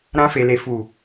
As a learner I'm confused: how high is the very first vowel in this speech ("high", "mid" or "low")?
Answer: low